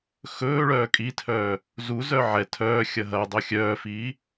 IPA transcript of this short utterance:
x ɵː ɭ œː kʼ i tʰ œː | z u z œ ʕ ɛ tʰ œː xʲ ɐ ɦ ɐ dˤ ɵ xʲ œː f i

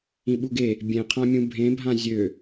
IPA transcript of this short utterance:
ĩ ɓ u ɡ e | bʲ ẽ qʰ ã mʲ ũ bʱ ẽ bʱ ã zʲ ø

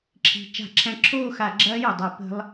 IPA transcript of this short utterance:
ǁʰ i̤˩ t͡ʃ a̤˧˩˧ ǁʰ æ̃˧˩ ǁʰ oː˥˧ x a˧˩˧ ɡ͡ǁ ɐː˦˥ j o˩ dˤ œ˧˩˧ p ə̤˦˥ lˠ

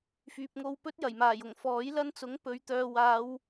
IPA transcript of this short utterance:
f yː˨ p̚ ŋ o˧ w p ɵ˥ t̚ j ɐ˨˩ j m aː˨˩ j ʊ˨˩ ŋ f ɔː˨˥ j l ɐ˥ n t͡s ʊ˨˥ ŋ p ɵ˨˧ ɥ t̪ œː˨ w aː˨˧ w

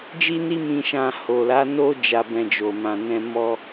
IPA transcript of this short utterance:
d͡ʒ i˦ n i˦ m ĩ˧ ʃ ã˧ h o˨ l a˨˦ n o˦ d͡ʒ a˧ b ɛ̃˧ d͡ʒ o˨ m ã˨ n ɛ̃˧ m ɔ˦

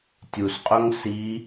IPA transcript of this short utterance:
tʲ u s qʼ o ŋ s i

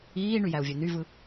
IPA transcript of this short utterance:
iː ɳ y j æ u̯ vʲ ø n y v ɯ

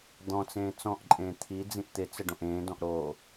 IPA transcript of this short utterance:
d̪ ɔ̃ t͡s ẽː t͡s ɔ̃ ʔ ǃʼ ẽː t̪ʰ i d͡z ĩ ʔ t̪ ɪ t͡s ə ɖ õ ʔ ẽː d ɔ̃ ʔ ɾ oː

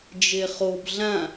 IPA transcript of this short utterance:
d͡ʒ e χ o b ɮ ã

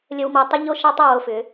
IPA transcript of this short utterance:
lʲ ə˧ w m ɤ˧ tˤ ʏ˥ ʎ o˥˧ ʃ a˥ tˤ a˧ w o˧ f ʏ˩˧

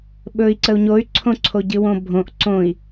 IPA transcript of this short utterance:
ɓ ɵ i̯ ǀ ə u̯ ɲ o y̯ ǀʰ õ ǀʰ o ɟ ɨ w õ bʱ õ ʔ ǀ õ i̯

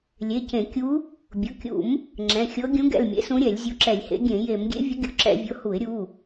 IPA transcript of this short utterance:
lʲ e˩˧˩ c ẽ˧˩˧ kʲ u˧˥ | bʲ ʊ˩˧˩ kʲ ṵ˧˩˧ m | ŋ͡ǁ ɛ̃˩˧˩ xʲ ɤ˧˥ ɡʲ ũ˧˥ ɡ ɛ̰˩˧˩ l mʲ ḛ˧˥ s ũ˧˥ ɾʲ ɛ˧˩˧ lʲ zʲ u˧˥ ǁ ɛ˧˩˧ lʲ h ḛ˧˥ ɡʲ ẽ˧˩˧ j e˧˩˧ m ɡʲ ḛ˧˥ vʲ ʊ˧˥ ɡʲ ʊ˩˧˩ ǁ ɛ̰˧˩˧ vʲ ʊ˩˧˩ h u˧˩˧ ɪ̯ ɾʲ u˩˧˩

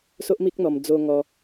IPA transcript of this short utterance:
s o˦ ʔ m i˦ k̚ n̪ ɔ˧ m d͡z o˧ ŋ ɔ˧

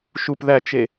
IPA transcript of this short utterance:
ʃ u p ð æ t͡ʃ e

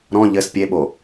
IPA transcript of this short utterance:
ɾ ɔ̃ ʎ ɘ s pʲ e ɓ o

